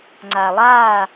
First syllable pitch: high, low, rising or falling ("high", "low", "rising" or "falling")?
low